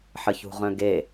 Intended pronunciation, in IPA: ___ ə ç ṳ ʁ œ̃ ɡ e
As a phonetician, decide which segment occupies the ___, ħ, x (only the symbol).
ħ